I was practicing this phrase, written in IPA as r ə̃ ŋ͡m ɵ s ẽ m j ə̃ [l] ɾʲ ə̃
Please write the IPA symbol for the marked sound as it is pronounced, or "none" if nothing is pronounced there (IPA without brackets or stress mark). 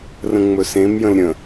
l